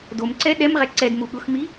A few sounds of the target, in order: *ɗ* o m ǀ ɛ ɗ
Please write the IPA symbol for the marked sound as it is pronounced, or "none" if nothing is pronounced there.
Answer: d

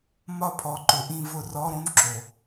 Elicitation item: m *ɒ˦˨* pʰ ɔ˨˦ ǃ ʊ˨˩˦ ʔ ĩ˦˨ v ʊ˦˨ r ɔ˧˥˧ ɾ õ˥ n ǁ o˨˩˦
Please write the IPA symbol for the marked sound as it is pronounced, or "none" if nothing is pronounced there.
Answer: ɒ˦˨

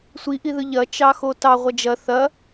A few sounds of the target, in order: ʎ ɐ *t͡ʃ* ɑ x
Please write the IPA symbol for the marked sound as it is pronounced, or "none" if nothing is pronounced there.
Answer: t͡ʃ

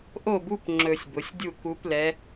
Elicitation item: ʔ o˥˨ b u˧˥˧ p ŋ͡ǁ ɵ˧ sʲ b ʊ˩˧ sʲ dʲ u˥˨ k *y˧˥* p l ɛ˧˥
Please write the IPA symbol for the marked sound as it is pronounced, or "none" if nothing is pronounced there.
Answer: u˧˥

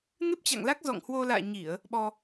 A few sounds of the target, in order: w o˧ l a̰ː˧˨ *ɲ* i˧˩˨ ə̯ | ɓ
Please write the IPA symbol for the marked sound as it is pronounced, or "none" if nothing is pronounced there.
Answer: ɲ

